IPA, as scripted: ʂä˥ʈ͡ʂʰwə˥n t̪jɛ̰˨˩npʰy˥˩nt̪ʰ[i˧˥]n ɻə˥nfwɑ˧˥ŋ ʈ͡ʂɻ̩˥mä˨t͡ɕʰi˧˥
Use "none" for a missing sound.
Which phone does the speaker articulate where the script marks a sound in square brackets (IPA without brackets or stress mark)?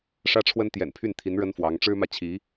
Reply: i˧˥